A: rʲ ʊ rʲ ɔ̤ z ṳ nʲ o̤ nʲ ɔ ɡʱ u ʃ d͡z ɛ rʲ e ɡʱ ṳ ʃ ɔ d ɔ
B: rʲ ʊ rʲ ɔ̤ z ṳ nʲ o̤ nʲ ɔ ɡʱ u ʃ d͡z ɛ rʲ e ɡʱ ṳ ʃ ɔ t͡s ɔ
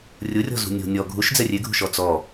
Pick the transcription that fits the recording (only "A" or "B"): B